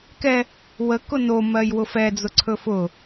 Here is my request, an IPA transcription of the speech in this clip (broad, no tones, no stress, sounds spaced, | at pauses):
k ɛ | w ə k ʊ n o m ɜ j w ʊ f ɛ d͡z ʊ ǀʰ ɵ f ʊ